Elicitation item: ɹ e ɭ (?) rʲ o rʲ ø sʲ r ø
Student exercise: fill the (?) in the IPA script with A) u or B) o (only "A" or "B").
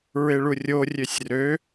A